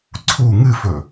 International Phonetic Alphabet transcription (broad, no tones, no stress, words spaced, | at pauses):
ǀʰu ŋɨfɵ